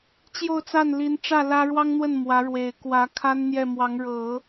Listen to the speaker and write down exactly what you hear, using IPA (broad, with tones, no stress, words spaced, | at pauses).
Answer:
t͡ɕjo˥˧ʊ̯t͡sa˥˩nli˧˥nʈ͡ʂä˥˩ lä˥ ɻwɑ˥ŋn̪wə˥˩n mwä˧˥ ɻwe˨˩ɪ̯kwä˧˥ kʰa˥nn̪jɛ˥˩mwɑ˧˥ŋ ɻɤ˨˩˦